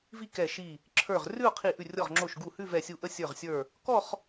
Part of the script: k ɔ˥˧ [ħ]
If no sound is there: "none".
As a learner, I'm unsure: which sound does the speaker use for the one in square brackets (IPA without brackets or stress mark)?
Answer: χ